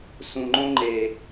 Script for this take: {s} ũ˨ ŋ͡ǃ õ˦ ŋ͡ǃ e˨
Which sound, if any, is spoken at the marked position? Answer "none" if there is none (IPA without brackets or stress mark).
s